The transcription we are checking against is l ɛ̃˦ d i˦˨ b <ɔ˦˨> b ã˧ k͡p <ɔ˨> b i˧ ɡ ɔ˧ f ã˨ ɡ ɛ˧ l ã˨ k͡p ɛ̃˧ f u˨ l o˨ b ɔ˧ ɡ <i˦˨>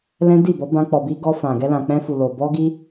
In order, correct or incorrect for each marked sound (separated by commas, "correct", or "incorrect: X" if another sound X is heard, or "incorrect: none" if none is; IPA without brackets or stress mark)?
incorrect: ɔ˨˦, correct, incorrect: i˧